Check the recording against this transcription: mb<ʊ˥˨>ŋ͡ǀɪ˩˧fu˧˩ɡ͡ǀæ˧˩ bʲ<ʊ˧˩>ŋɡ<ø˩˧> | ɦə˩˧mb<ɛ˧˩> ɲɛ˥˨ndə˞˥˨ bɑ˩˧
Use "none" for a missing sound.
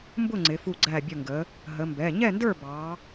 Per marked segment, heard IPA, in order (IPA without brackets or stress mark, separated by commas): ʊ˥˨, ʊ˧˩, ə˩˧, ɛ˩˧˩